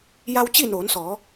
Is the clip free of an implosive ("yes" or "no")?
yes